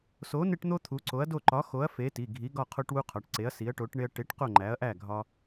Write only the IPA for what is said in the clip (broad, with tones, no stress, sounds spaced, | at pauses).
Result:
s o˨˥ n e˦ ʈ n̪ o˦ t̪ʰ u˨˥ ǀ o˨˥ ɐ̯ d o˥˨ ǃ ɒ˨˥ x o˨˥ ɐ̯ f e˨˥ t i˩˧˩ ɡʱ i˨˥ ɡ ɒ˥˨ qʰ o˦ ʈ w u˦ qʰ ɒ˩˧˩ ʈ ǀ e˨˥ ɐ̯ s i˨˥ ɐ̯ ʈ o˨˥ ʈ ɳ e˦ ɐ̯ ʈ e˨˥ ʈ q o˥˨ ŋ͡ǃ æ˨˥ ɐ̯ ʔ æ˥˨ ɡʱ ɒ˦